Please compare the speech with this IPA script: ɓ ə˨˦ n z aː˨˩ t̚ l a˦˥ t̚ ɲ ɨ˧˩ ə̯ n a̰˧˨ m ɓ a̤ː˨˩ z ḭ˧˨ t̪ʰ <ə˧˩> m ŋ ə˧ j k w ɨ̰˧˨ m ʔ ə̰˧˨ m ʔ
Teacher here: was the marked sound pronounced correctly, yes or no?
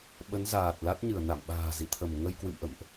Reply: yes